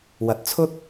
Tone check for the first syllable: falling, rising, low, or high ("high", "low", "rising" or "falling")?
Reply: rising